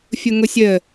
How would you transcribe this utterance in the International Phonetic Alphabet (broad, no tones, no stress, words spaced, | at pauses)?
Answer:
fʲʊŋʊsʲə